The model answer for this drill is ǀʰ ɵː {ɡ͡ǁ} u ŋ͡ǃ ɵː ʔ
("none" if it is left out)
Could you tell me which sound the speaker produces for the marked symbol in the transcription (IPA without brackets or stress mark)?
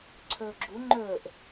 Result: ɡ͡ǁ